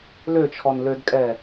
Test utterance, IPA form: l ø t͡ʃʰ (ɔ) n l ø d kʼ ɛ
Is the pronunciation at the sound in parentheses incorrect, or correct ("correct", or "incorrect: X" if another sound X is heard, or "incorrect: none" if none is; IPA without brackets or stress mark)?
correct